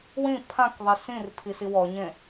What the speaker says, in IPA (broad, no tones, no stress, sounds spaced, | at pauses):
w ĩ pʰ ã k ðˤ i s ĩ r pʰ i s i w ɔ ɲ ẽ